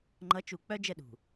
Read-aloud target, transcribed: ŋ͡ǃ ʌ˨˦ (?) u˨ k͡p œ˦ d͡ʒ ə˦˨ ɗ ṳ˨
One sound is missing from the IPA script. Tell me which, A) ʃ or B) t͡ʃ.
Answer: B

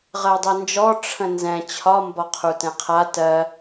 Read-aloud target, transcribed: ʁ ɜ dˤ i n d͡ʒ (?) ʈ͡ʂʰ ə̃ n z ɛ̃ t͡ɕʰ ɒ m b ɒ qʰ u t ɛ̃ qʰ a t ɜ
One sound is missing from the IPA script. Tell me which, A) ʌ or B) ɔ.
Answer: B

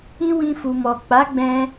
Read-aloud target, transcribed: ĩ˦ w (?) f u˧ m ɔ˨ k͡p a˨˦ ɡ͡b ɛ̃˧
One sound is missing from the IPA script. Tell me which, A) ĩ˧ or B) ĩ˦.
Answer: B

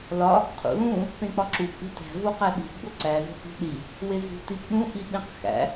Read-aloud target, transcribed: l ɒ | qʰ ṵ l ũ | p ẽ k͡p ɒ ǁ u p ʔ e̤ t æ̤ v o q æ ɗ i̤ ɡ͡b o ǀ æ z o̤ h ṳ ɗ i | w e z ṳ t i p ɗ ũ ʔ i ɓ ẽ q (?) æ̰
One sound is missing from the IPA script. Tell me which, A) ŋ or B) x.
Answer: B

